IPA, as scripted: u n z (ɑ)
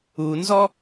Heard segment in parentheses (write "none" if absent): ɔ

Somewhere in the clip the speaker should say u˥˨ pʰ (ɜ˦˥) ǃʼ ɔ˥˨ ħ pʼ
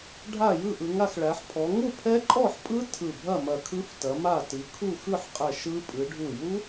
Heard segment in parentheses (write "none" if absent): ɛ˦˥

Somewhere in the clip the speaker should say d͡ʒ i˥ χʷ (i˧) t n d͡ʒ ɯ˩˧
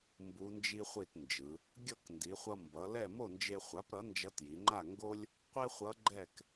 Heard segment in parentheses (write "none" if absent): i˥˨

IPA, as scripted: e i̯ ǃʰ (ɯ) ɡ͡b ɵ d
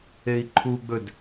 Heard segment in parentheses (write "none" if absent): u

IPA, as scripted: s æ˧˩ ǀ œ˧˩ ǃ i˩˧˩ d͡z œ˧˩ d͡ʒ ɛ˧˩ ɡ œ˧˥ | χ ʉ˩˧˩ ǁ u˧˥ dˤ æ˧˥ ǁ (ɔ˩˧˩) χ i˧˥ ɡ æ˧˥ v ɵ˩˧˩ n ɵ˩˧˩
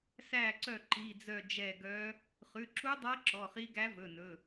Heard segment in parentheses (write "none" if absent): ɔ˩˧˩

